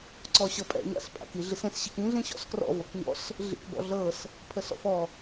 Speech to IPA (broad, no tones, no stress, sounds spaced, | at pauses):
ǀ ɔ ɕ ɤ pʼ ɛ̰ ɲ a̰ s pʼ a̰ k i ɮ i s ẽ s ɕ i k ĩ ɮ ĩ ɕ ɔ̰ s k r ɔ̰ v ɤ k ɲ ɔ̰ s | ɮ ḭ k b ɔ̰ ɮ ɤ s | pʰ ə s ɔ̰ f ɔ